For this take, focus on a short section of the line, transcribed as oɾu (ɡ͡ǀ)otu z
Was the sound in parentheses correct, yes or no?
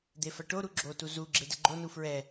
no